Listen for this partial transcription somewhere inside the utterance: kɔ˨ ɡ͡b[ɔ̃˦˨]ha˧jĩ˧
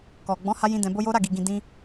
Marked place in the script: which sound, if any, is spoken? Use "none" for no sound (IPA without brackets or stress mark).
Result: ɔ̃˨˦